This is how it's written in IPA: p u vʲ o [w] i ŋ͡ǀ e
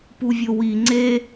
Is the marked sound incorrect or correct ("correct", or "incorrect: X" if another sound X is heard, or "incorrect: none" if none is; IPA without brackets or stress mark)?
correct